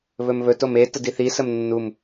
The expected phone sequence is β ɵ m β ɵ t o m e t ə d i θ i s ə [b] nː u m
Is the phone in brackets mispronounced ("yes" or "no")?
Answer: yes